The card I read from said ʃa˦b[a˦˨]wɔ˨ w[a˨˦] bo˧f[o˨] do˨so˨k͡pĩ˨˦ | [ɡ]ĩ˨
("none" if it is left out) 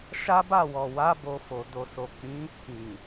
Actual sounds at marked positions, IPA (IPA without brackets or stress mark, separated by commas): a˦˨, a˨˦, o˨, k